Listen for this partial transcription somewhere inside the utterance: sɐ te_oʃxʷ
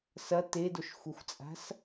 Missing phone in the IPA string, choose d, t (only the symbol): d